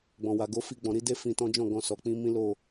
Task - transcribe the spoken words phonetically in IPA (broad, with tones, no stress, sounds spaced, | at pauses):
ɡ͡b ɔ̃˨ w a˨ ɡ o˨˦ f i˧ ɡ͡b ɔ̃˨ ɾ i˧ d e˦ f ĩ˧ t ɔ̃˦ d͡ʒ ɔ̃˦˨ ɡ ɔ̃˧ s ɔ˨ k͡p ĩ˧ m ĩ˦ l o˦˨